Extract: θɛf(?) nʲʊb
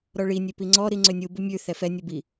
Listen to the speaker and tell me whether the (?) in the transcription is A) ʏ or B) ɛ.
B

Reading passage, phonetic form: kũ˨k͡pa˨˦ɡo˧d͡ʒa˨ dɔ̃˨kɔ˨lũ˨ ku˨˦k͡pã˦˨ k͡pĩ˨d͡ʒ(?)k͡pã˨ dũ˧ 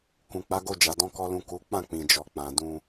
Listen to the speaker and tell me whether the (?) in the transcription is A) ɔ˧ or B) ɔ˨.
B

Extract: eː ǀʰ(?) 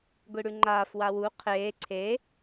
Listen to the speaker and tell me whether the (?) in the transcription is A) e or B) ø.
A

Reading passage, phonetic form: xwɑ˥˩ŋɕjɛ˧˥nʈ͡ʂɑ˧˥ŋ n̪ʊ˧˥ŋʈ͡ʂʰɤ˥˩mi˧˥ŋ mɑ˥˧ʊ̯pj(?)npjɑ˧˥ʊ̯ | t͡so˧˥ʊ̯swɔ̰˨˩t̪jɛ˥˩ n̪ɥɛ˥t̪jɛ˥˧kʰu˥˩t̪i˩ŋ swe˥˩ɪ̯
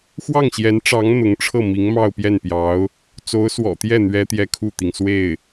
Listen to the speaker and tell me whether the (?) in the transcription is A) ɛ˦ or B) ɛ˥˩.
B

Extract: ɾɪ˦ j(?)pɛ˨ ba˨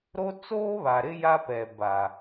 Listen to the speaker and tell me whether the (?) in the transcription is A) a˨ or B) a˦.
B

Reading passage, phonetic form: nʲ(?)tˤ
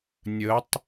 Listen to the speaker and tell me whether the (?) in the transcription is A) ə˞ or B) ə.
B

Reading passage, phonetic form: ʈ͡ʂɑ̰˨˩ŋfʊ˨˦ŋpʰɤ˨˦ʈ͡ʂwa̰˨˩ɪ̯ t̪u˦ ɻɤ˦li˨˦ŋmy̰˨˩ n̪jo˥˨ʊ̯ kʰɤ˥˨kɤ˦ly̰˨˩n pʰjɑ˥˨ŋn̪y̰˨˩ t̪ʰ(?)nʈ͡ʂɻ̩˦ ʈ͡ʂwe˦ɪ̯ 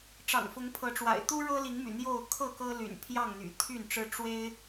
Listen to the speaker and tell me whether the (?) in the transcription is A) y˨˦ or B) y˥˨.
B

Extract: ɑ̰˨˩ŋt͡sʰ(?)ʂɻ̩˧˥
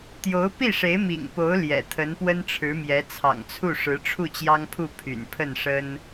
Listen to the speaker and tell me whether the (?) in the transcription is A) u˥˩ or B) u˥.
A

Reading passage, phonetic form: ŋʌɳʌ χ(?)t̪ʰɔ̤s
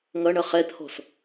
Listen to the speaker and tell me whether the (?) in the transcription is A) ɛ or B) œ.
A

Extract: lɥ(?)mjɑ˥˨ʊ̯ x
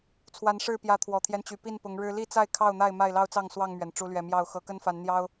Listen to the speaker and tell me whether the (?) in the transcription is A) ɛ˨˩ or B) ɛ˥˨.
A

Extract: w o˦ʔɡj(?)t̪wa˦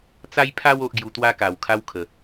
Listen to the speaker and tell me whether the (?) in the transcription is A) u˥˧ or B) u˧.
B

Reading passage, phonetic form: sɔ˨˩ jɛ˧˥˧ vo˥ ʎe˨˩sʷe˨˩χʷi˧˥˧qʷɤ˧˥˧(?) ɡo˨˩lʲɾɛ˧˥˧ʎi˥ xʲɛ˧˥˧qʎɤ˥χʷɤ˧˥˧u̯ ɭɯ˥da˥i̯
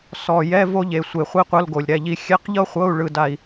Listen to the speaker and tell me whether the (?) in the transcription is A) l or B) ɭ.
A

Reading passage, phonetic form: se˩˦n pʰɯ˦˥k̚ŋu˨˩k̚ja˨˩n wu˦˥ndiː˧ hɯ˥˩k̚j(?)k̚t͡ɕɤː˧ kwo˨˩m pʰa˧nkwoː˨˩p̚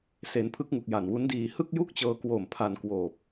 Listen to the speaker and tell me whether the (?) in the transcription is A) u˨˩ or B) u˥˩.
B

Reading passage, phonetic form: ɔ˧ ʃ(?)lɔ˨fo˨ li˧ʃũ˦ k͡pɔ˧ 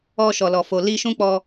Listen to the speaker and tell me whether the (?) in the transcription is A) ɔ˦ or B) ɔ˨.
B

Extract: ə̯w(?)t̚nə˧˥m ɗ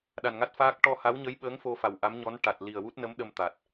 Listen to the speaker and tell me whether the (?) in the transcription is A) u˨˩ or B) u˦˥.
B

